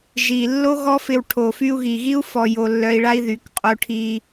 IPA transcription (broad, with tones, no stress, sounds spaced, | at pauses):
ʒ i˨ lː o˦ ɣ ɔ˦ f ɪ˧ w ʈʰ o˨ f y˧ u̯ ɣ i˨ ɣ i˦ u̯ f ɔ˧ j o˧ lː œ˧ i̯ ɭ a˦ i̯ ð y˨˦ k qʼ o˧ ʈʰ i˧